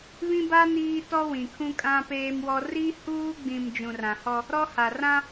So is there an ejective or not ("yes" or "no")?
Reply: yes